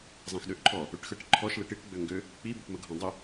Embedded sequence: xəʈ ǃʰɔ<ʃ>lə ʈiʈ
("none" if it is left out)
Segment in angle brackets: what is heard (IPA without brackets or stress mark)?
ʃ